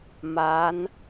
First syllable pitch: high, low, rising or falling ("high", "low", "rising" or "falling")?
rising